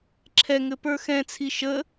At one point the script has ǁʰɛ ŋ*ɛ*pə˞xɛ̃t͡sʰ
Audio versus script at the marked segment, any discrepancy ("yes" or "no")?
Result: yes